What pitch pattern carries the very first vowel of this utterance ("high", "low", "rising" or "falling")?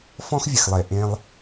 high